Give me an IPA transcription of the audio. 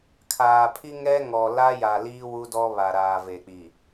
kʰ aː˨ pʰ i˦ ŋ ɛ˦ ŋ ɔ˨ l a˦ j a˨ l iː˦ w u˦ d ɔ˦ β a˨ ɾ aː˨ v e˨ k͡p i˨

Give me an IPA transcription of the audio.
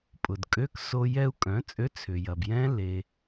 pʼ ʊ˩ d kʼ ø˧˥˧ k s o˧ j ɛ˧ u̯ kʼ œ̃˩˥ t͡sʼ ø˧˥˧ t͡sʰ ʏ˩ j ɐ˩ b j ɛ̃˦˥ l e˩

